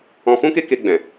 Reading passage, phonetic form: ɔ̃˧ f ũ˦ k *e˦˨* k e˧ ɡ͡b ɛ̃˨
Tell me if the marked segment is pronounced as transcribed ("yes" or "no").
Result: no